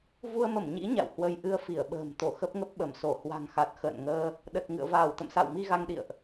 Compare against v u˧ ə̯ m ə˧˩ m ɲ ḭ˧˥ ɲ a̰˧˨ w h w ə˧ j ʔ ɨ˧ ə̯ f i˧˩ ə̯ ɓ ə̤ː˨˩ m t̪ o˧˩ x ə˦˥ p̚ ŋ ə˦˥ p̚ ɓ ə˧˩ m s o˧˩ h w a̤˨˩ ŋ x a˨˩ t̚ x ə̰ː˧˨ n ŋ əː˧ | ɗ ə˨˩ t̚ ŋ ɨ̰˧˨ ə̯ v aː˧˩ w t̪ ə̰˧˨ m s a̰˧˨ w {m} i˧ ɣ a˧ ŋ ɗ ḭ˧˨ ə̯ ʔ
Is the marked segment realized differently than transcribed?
no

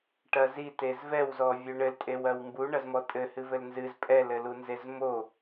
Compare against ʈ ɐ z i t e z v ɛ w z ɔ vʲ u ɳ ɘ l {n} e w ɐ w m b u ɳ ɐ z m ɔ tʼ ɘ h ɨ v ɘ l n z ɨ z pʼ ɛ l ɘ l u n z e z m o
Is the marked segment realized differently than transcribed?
yes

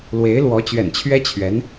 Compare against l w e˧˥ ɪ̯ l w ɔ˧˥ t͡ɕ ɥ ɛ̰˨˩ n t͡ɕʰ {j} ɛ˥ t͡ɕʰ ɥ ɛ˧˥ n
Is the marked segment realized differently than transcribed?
yes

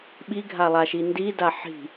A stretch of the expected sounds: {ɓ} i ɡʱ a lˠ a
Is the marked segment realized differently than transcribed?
no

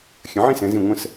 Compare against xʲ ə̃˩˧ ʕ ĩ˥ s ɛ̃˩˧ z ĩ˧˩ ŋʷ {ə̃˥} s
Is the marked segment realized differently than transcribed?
yes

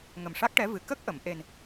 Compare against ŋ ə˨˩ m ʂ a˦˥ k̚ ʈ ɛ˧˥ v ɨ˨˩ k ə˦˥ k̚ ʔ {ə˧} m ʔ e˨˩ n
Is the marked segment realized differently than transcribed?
yes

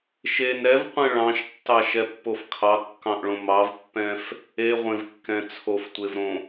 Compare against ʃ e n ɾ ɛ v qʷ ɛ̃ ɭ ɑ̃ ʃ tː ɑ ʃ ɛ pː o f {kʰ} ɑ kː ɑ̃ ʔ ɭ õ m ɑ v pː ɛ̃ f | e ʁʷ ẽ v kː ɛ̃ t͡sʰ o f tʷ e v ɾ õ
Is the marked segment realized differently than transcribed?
no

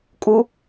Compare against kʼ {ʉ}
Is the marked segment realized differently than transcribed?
yes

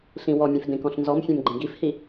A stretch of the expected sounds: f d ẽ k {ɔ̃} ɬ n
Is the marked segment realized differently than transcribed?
no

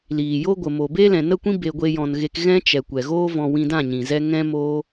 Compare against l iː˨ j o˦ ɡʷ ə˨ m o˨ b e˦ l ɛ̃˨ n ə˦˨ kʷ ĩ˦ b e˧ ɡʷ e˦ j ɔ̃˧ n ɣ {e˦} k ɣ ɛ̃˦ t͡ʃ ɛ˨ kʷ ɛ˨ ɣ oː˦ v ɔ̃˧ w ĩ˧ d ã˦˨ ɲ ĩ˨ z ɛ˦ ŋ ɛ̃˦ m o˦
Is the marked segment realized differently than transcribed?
no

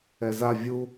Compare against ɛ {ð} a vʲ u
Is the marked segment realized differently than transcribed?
yes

